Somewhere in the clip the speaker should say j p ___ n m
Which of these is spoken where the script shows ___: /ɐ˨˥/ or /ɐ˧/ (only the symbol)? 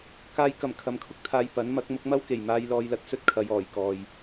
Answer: ɐ˨˥